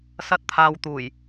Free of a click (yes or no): yes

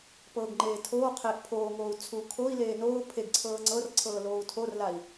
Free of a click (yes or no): no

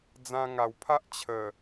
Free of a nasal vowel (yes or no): no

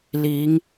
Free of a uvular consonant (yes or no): yes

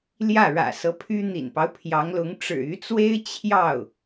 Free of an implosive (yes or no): yes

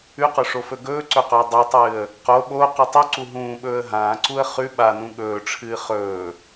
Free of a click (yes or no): no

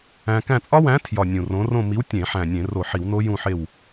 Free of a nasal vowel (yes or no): no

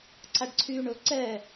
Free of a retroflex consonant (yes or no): no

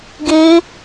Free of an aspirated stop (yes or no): yes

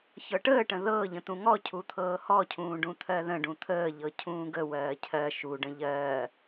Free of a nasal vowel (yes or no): no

